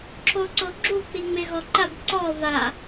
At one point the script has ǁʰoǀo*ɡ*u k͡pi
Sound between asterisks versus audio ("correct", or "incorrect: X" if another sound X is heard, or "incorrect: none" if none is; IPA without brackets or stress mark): incorrect: ɡ͡ǁ